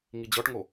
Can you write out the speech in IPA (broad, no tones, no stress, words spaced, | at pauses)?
ŋid͡ʑɔʈŋo